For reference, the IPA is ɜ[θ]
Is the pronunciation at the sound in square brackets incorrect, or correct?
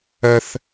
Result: correct